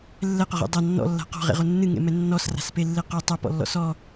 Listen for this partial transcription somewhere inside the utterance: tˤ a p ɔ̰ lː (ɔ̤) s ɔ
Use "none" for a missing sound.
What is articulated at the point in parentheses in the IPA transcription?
ɔ̰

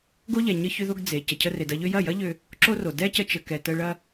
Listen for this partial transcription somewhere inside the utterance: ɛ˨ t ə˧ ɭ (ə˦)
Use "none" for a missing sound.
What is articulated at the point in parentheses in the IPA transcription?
ɐ˦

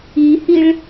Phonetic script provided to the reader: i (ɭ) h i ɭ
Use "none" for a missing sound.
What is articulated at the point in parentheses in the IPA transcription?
none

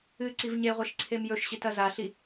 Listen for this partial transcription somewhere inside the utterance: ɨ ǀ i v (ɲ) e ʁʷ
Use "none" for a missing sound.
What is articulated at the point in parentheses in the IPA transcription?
ɲ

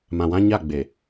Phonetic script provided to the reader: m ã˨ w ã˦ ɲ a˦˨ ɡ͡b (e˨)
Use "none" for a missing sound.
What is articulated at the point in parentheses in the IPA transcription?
e˨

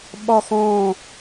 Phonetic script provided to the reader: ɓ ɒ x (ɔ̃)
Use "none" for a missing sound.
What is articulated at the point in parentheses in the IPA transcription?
ɔ̃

